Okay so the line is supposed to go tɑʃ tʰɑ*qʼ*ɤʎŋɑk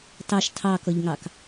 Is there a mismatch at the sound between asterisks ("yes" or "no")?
yes